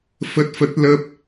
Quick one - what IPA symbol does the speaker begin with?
f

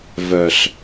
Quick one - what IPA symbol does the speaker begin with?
v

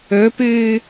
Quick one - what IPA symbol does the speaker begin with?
ɵ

